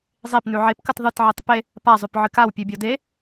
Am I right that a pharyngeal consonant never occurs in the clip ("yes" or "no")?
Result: no